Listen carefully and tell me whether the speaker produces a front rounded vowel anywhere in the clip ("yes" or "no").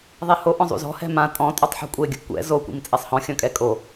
no